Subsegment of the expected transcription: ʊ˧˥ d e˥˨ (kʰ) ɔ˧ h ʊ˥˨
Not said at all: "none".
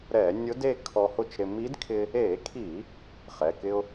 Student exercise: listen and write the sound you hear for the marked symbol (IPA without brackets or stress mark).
kʰ